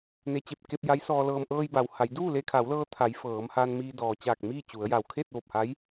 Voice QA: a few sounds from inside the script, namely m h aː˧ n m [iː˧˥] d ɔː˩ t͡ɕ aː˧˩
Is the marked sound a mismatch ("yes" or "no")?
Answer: yes